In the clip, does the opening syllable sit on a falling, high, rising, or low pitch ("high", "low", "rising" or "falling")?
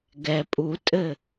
low